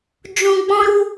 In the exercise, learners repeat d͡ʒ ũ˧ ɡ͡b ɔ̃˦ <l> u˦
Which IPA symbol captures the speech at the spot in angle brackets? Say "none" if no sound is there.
ɾ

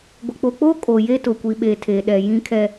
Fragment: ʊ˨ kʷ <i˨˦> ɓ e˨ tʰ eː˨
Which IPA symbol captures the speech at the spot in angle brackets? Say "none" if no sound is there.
i˨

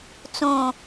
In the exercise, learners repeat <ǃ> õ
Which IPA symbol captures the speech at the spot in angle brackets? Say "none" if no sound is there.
t͡s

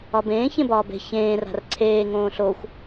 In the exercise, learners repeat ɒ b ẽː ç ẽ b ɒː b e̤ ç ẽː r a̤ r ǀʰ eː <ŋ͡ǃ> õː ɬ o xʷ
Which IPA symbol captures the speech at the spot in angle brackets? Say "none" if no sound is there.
ŋ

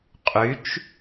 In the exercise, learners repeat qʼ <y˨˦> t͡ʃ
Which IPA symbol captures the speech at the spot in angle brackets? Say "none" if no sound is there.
y˨˦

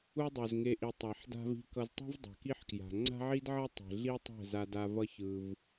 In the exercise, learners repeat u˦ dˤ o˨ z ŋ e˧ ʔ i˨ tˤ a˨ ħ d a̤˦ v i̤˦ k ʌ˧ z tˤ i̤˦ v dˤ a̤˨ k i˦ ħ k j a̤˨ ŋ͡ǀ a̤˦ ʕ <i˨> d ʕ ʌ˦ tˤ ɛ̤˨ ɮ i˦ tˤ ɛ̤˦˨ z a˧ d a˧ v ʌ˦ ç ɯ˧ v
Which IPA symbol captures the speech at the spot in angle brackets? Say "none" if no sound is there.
i˦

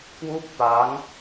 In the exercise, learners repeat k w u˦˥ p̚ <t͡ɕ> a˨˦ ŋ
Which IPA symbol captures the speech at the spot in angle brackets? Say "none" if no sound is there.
t̪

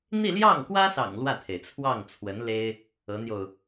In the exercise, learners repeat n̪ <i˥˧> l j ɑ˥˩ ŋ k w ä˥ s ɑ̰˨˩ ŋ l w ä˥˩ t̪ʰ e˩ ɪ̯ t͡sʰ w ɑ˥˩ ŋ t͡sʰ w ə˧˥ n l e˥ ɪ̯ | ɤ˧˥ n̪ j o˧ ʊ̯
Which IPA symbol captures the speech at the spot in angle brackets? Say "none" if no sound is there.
i˥˧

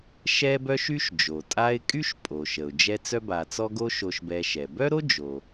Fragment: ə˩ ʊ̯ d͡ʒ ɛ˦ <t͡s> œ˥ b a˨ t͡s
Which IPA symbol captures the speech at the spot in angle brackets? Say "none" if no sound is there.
t͡s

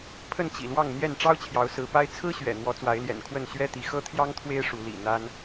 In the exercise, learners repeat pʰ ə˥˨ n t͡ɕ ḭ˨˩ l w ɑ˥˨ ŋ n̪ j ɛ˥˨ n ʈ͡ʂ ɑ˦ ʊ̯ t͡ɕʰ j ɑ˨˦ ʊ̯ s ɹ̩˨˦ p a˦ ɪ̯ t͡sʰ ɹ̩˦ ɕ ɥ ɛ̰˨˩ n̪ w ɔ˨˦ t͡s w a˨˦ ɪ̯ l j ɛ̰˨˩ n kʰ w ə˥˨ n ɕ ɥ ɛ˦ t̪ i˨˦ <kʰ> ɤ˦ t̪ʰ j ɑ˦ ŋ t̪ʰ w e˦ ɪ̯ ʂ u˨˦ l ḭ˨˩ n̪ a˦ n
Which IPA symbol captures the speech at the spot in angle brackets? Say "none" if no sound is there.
x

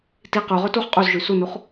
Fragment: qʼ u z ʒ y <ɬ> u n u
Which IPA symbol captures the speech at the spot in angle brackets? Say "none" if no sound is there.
s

